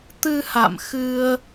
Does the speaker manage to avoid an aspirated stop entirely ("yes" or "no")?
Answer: yes